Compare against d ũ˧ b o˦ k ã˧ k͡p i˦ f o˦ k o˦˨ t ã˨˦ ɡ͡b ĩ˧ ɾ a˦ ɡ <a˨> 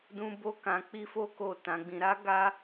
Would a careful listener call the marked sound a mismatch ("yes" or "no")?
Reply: yes